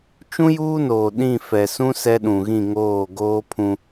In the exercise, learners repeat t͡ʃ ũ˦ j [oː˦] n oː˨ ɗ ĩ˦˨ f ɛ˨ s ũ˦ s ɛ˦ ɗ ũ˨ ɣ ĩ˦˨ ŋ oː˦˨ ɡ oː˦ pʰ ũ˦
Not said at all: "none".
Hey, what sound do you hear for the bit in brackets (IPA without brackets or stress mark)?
uː˦